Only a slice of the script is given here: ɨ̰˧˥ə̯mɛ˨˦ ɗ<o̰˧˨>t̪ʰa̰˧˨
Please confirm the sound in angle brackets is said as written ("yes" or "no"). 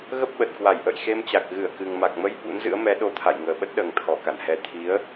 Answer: no